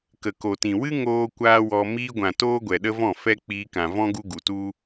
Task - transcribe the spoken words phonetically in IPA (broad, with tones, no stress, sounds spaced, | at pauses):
k ə˨ k o˨ t ĩ˨ w ɨ˦ ŋ oː˦ kʷ aː˦ w ɔ˧ m iː˧ ɡʷ ã˨ t oː˧ ɡʷ ɛ˨ ɗ ə˦ v ɔ̃˦˨ f ɛ˦ k͡p iː˧ k ã˨ v ɔ̃˦ ɡ u˦ ɡ u˨ t u˦